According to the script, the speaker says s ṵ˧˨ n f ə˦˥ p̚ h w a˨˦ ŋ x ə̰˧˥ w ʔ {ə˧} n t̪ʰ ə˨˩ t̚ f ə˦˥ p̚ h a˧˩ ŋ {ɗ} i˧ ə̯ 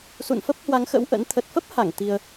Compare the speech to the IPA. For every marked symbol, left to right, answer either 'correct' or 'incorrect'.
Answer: incorrect, incorrect

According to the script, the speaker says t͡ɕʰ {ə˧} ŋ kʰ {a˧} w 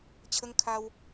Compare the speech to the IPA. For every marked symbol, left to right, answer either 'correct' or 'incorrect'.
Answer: correct, correct

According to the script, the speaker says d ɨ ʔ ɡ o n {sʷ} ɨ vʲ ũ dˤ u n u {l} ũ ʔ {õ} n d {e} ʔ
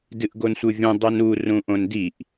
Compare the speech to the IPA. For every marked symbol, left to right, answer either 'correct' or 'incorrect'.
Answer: correct, incorrect, correct, incorrect

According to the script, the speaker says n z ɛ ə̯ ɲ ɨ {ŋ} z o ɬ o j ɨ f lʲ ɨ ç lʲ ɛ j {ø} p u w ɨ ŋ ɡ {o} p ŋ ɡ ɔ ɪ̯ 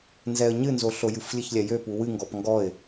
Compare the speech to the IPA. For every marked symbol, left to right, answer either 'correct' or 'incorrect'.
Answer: incorrect, correct, incorrect

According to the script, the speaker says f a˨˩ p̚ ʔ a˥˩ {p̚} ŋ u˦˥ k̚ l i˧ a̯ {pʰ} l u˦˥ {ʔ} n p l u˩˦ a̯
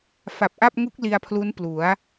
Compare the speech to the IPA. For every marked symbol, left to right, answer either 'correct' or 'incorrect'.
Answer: correct, correct, incorrect

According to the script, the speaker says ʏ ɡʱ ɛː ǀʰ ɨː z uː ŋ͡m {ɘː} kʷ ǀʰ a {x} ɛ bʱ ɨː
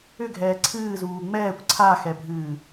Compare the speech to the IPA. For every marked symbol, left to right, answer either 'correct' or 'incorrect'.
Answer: incorrect, correct

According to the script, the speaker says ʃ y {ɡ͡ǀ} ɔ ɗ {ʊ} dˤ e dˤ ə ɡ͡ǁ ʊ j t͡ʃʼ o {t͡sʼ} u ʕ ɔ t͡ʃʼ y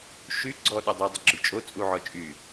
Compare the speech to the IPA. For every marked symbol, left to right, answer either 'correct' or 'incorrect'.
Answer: correct, correct, correct

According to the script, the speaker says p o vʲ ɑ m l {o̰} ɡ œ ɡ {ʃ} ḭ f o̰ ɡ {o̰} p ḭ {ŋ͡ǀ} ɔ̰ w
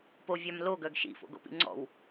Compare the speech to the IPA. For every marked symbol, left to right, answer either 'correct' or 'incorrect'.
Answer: incorrect, correct, correct, correct

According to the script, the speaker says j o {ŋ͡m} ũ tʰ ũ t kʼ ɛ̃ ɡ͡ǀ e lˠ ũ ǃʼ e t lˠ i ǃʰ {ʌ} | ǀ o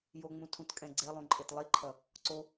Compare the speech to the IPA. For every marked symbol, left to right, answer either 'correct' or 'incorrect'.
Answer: correct, correct

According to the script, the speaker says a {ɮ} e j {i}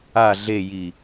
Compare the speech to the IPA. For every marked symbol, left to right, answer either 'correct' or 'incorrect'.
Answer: correct, correct

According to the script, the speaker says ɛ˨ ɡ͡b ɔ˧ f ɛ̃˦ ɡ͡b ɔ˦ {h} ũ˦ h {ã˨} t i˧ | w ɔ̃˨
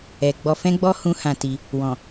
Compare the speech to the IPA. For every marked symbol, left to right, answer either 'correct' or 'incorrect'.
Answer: correct, incorrect

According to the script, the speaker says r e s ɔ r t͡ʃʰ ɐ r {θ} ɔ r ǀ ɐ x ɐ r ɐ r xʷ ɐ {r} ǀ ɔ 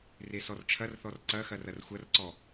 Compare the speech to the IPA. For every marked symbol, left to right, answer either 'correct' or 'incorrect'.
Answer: correct, correct

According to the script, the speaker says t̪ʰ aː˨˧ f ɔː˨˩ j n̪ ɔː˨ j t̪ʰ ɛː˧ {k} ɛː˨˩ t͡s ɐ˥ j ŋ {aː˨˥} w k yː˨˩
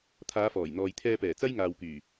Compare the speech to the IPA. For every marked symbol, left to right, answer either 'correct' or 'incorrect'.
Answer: incorrect, incorrect

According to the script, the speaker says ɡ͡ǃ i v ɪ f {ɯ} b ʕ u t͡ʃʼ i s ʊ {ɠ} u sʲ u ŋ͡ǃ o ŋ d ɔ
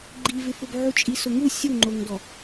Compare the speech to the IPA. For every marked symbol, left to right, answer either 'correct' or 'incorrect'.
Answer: incorrect, incorrect

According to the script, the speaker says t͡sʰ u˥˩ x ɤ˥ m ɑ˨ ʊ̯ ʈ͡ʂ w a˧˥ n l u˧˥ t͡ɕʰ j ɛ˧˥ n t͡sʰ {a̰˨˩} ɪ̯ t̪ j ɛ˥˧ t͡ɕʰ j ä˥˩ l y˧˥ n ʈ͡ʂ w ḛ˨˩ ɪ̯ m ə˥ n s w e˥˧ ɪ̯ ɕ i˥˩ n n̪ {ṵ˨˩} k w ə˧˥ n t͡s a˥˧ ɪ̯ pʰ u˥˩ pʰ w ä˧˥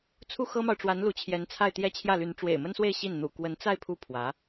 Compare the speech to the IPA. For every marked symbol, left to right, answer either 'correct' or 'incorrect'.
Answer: incorrect, correct

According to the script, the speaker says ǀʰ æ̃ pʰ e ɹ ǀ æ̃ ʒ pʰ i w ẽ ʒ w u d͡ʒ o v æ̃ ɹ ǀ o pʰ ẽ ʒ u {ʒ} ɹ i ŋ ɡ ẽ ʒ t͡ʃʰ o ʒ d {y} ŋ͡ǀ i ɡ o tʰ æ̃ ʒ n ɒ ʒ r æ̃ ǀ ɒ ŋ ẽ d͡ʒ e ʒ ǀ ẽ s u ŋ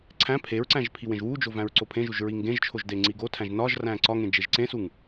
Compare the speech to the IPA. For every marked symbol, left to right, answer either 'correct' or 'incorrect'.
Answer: correct, incorrect

